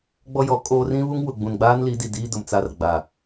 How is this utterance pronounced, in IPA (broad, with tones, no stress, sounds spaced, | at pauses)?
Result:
ɡ͡b ɔ˦ j ɔ˨˦ kʼ oː˦ r ĩ˦ β u˦ ŋ w ʊ˨ ɡ͡b ũ˨ n ɡ͡b aː˦ n l i˨˦ d i˨ d iː˦ d ʊ˨ m t͡s a˦ r ɡ͡b a˨